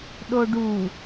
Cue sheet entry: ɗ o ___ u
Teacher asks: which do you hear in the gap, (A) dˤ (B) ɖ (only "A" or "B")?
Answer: B